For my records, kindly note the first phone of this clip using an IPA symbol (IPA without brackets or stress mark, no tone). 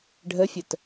ɖʱ